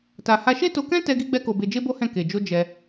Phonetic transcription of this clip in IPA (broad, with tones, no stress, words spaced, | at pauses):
ta˧ ha˧ʃe˦to˧kɛ̃˦ tɛ˦ɡi˦ɡ͡bɛ˦ko˧ be˧d͡ʒe˦bo˦hɛ̃˦˨ ke˨d͡ʒo˧ d͡ʒɛ˧